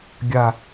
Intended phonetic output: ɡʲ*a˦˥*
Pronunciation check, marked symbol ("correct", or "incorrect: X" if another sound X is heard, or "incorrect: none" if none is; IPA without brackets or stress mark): incorrect: a˦˨